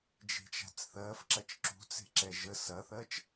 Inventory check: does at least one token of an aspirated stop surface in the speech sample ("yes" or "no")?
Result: no